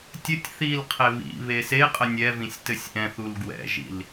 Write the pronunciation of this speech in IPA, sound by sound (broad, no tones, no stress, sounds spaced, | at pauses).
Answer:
tʲ ɘ tʲ θ i l qʰ e β ḭ β e s e qʼ ə nʲ ɛ v ĩ sʲ t ɘ sʲ ʔ ɛ̃ θ u l ɡ w ɛ̰ ʒ ḭ l